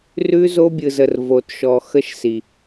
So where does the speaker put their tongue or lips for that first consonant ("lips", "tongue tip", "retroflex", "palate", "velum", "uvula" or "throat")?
tongue tip